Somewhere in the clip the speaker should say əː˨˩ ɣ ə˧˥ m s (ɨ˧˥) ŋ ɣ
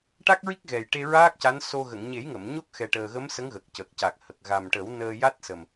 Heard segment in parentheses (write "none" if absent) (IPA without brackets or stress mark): ə˧˥